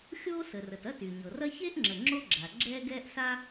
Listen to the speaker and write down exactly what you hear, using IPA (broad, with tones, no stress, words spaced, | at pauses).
xʲoː˥sə˩rə˩t ɐ˥ty˩ɲɤ˩rɐ˥ çe˥ʔŋ͡ǁə˩ ŋ͡ǁo˥ɡ͡ǁa˩ ɡ͡ǁɛː˥ɡɛː˥ʔ sa˥